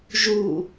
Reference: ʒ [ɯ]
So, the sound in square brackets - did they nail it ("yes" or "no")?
no